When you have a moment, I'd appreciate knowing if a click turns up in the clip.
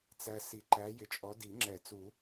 yes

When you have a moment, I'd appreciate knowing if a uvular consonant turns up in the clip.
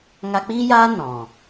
no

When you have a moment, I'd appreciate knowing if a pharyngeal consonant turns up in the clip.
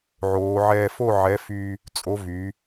yes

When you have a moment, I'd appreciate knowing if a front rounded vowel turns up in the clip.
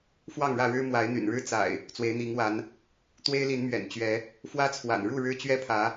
yes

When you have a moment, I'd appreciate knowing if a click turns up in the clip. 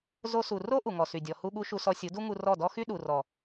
no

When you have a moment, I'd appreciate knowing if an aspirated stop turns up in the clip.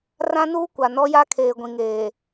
yes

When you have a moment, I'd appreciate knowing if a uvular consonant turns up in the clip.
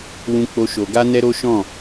no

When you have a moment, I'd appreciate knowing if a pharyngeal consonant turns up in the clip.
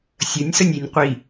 no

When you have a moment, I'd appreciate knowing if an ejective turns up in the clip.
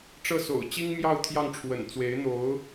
no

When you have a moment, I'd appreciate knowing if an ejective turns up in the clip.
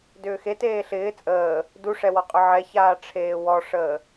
yes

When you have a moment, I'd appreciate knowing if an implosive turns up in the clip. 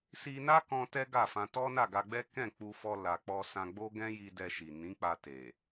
no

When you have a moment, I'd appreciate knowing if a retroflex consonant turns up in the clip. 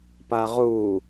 no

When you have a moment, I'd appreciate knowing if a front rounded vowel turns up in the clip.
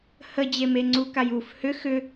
yes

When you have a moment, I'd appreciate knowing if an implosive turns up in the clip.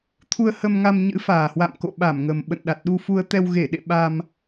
yes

